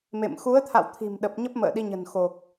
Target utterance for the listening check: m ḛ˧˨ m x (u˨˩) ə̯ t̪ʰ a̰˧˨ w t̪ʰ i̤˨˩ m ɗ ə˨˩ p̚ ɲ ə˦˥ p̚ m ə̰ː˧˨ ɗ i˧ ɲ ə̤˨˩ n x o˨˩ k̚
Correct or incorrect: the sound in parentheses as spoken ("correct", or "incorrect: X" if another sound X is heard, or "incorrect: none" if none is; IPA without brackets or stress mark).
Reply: incorrect: u˨˦